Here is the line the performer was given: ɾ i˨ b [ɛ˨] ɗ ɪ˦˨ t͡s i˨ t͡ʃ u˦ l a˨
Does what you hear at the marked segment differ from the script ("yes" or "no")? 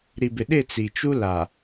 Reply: yes